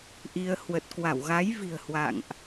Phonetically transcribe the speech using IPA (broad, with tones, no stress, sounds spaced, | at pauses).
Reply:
ʔ i˧ ə̯ h w ə˨˩ t̚ k w a˧˩ w ɣ a˨˦ j v i̤˨˩ ə̯ h w a̰˧˨ ŋ ʔ